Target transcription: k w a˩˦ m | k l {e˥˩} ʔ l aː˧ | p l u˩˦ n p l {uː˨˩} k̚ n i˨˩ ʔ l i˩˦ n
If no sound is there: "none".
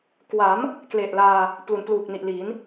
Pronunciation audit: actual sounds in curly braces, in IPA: e˨˩, uː˨˩

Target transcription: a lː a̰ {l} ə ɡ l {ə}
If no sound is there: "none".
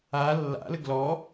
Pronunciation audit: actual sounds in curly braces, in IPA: l, ɔ

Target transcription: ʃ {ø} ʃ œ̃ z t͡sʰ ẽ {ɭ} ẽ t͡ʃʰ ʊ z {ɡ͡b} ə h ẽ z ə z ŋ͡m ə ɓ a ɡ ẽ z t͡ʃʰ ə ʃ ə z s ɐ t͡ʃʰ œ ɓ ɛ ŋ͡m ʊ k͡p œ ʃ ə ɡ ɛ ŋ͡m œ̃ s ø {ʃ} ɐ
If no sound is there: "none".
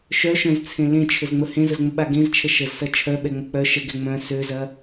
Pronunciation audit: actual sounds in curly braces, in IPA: œ, l, ŋ͡m, z

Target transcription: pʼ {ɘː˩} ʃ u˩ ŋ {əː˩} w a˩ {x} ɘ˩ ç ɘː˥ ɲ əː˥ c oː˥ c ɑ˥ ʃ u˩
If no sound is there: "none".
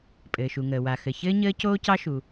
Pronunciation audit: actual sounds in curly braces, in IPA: ɘː˩, əː˩, x

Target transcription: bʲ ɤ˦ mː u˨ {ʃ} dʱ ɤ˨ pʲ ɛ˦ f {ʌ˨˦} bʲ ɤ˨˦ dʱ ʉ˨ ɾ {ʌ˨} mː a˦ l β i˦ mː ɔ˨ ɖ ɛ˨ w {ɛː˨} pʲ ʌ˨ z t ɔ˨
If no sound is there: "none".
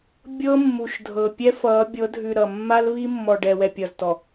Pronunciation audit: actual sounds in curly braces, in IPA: ʃ, ʌ˨˦, ʌ˨, ɛ˨

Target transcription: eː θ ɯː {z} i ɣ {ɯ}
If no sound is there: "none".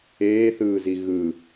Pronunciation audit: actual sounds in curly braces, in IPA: z, ɯ

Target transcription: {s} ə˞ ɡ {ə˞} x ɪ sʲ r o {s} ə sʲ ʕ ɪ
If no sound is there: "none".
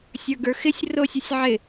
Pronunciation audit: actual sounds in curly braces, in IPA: sʲ, ə˞, sʲ

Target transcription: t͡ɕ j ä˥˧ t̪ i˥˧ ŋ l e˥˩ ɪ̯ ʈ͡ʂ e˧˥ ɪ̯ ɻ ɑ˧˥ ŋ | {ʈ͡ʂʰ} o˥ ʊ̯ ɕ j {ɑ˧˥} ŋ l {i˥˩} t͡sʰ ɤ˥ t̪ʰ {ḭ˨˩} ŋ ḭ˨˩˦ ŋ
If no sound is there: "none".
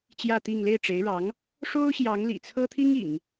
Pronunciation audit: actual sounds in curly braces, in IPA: ʂ, ɑ˧˥, ḭ˨˩, i˥

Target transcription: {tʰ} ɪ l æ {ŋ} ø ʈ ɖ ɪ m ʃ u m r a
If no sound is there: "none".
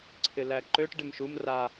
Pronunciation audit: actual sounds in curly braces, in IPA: ǀʰ, ǃ

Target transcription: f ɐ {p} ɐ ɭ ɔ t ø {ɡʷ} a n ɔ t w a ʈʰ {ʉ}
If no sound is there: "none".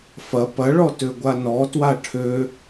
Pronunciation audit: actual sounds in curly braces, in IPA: p, ɡʷ, ø

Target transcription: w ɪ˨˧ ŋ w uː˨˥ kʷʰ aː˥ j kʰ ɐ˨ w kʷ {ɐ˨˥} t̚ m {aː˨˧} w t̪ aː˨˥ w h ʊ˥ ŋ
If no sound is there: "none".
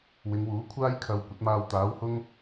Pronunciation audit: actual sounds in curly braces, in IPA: ɐ˨˥, aː˧

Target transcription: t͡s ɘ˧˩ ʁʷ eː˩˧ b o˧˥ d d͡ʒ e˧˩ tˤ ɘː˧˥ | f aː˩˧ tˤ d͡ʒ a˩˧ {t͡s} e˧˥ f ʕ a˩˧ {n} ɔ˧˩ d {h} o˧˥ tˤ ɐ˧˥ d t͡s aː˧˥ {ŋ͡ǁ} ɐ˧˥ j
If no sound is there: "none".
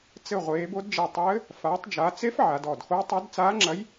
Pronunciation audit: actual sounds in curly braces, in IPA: t͡s, d, x, ŋ͡ǁ

